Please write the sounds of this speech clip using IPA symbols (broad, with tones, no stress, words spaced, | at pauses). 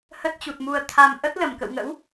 hə˦˥t̚t͡ɕu˨˩t̚mu˨˩ə̯ t̪ʰa˧m ʔə˦˥t̚lə˧˩mkə̰˧˨wŋə̰˧˥w